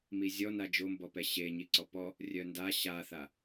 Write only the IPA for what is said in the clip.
m i zʲ ɔ n a d͡ʒ o m b ɔ p ɛ ɕ e ɲ i ǀ ɔ p ɔ | rʲ œ n d a ɕ a θ a

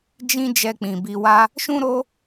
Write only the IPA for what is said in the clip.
d͡ʒ ĩ˧ d͡ʒ ɛ˧ k͡p ĩ˨ b i˧ w a˦ | ʃ ũ˦ ɾ o˦

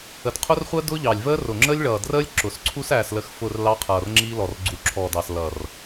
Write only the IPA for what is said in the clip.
ə˨ d qʰ ʊ˦ r χʷ əː˦ d ʊ˦ ʎ ɑ˨ lʲ v əː˦ r ʊ˨ ŋ͡ǁ əː˦ lʲ ɭ ʌː˨ d r əː˦ lʲ ǁ ʊ˨ s ǀʰ u˦ s æː˨ s l ə˨ x f ʊ˦˨ r l ɑ˦ qʰ ʌː˨ r ŋ͡ǁ i˦ l ɔ˨ r ɡ͡ǀ u˨ ǁʰ ɔ˨ d ɑ˨ s l ʌ˨ r

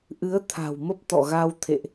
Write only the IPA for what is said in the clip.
ʔ ɨ˨˦ ə̯ t̪ʰ a̤˨˩ w m ə˦˥ p̚ t̪ ɔ̰˧˨ ɣ a˧ w t̪ʰ ḛ˧˨ ʔ

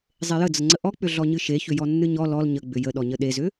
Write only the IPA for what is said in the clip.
zˤ e j ə d͡z ə ŋ͡ǀ ə ʔ ɔ k͡p ʏ ɮ ɔ ɲ ɨ ʃ e ç ʏ j ɔ nː ɨ ɲ ɔ l ɔ l ɲ ə ɡ͡b ʏ j ə ɗ ɔ ɲ ə ɗ e z ʏ

